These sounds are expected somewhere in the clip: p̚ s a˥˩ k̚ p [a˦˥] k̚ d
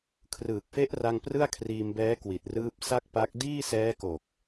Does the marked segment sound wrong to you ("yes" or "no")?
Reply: no